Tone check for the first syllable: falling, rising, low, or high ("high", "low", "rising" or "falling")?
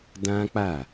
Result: high